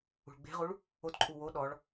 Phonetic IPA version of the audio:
ṳ ɭ ɡ͡b e̤ ʁ u ɭ | o t ǃʼ u w o ɗ ɔ ɭ

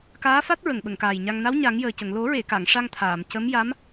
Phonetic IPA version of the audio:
k aː˧˥ f a˦˥ t̚ ɹ ə˨˩˨ ŋ ɓ ə˨˩˨ ŋ k aː˨˩ j ɲ a˧ ŋ n a˧˥ w ɲ a˨˩˦ ŋ j əː˨˩ c ə˨˩˨ ŋ l o˨˩˦ ɹ e˨˩˨ k a˨˩˨ ŋ ʂ a˧ ŋ t̪ʰ aː˨˩˨ m c ə˧˥ m j a˧˥ m

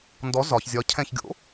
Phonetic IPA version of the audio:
n d ɔ z ɒ ç zʲ ɒ cʰ ɛ̃ ç ɡʲ o̰

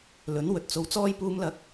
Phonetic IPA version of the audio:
l ɵ˨˥ n w ɵ˨˥ t̚ t͡s o˨˥ w t͡s ɔː˧ j p uː˨˧ m l ɐ˨˥ k̚

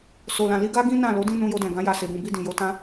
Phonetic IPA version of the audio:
s o˨ l ã˨ l i˧ ɡ a˦ ɡ ĩ˦ n ã˦˨ l o˨˦ d ĩ˦ n ũ˧ j o˧ d ɛ̃˨ ɡ ã˨˦ j a˧ s e˨ b ũ˨ b i˧ d ĩ˨ j o˧ t ã˦

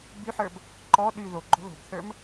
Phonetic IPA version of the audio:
b y ħ ə˞ b | ǃ ɔ ɗ y ð o ɡ͡ǃ o̤ ð o̤ b θ ə˞ m

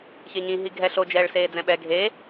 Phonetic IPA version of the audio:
ç e ɲ ĩ ɦ i ɡʱ ɛ ɬ o d͡ʒ ɛː ɭ s eː d͡z ɛ̃ ɓ ɛ ɡʱ e

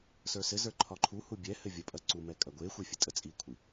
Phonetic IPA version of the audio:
s ə˞ s ɘ z ə˞ ǃʰ ɒ ǃʰ u h u bʲ ɛ h ɘ vʲ ə pʼ ɐ ǀ u m ɛ kʼ ɐ ɡʷ e xʷ e fʲ ɘ tʼ ə t͡sʼ i kʷʰ i

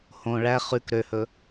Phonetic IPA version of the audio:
h õ ɭ æ χ ʉ k ɾ ø h ɵ

